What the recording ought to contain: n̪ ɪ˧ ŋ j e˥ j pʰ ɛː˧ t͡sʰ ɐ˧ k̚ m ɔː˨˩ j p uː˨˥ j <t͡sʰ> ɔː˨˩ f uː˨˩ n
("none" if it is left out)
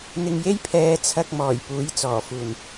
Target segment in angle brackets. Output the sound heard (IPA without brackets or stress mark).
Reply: t͡s